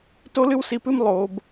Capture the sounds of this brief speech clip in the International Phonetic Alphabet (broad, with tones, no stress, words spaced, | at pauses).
to˥lɨ˥wsi˧pɨ˥m lˠo˩˧b